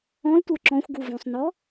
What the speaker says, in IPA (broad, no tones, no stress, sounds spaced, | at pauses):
ɔ̃ l tʷ ə˞ ǁ ɔ̃ xʷ ɡ u v õ sˤ n ɔ